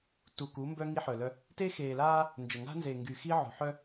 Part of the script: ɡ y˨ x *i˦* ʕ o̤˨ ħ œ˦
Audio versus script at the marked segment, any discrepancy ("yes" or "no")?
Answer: no